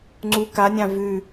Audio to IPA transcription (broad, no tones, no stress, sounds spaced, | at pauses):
ŋ͡ǀ u k a nʲ ã v ʉ